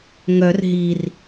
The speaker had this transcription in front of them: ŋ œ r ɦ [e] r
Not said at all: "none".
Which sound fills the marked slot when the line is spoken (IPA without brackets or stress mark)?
i